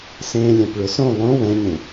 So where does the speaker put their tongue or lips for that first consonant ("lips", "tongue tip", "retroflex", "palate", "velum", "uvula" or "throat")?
tongue tip